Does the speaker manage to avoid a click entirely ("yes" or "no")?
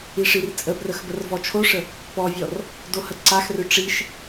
no